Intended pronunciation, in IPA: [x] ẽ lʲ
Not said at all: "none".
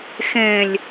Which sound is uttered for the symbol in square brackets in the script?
x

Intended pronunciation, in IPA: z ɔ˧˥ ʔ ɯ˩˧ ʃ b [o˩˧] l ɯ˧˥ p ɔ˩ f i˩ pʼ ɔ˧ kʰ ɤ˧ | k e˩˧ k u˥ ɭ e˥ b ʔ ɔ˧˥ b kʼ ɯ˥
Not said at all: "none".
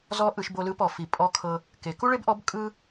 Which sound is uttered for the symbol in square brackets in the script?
o˧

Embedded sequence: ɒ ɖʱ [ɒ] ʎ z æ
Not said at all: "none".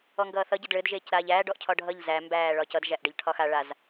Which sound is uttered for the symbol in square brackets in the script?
ʌ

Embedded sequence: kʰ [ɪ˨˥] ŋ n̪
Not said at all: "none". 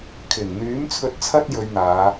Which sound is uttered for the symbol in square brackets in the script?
ɪ˨˩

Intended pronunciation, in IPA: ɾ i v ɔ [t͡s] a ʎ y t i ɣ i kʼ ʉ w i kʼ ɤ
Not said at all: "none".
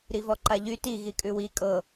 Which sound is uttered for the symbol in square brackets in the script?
ǃ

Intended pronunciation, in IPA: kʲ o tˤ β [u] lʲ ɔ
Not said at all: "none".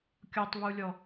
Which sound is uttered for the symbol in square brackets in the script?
u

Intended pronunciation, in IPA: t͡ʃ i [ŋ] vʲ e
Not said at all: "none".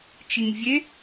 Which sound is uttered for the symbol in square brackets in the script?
ŋ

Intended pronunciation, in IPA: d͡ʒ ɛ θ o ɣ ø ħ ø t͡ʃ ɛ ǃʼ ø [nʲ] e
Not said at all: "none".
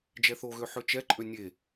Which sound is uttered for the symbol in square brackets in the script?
nʲ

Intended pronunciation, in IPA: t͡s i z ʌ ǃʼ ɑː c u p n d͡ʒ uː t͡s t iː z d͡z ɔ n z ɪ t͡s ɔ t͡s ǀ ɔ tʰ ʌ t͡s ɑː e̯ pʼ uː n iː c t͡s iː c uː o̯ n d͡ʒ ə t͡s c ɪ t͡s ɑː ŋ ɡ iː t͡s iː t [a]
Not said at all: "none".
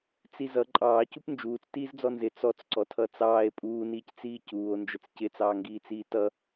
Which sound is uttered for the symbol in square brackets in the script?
ʌ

